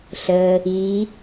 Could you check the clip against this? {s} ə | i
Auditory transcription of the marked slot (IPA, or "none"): ɬ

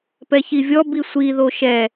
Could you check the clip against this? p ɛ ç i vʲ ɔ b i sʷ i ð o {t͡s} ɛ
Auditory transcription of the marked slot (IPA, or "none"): ʃ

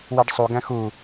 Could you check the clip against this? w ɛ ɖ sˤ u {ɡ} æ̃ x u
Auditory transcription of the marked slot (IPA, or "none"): ɡ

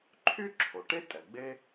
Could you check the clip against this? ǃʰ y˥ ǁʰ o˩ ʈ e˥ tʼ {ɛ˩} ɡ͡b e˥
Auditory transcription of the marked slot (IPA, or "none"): ɛ˩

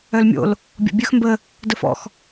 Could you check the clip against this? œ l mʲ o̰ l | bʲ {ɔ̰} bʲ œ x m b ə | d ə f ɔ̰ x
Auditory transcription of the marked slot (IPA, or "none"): ɔ̰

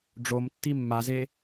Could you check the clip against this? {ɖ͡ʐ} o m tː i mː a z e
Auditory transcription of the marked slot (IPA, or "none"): ɖ͡ʐ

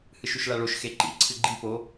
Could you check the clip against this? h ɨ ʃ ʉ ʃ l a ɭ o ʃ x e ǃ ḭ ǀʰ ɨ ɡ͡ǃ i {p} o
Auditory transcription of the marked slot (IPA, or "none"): p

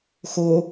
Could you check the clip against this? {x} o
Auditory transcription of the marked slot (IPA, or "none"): x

